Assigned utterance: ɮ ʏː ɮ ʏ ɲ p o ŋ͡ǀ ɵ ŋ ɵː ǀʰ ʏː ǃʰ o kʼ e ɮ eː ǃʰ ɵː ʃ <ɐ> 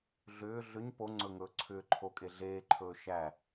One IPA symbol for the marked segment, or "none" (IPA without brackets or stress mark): æ